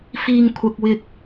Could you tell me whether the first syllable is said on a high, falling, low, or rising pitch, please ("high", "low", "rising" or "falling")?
low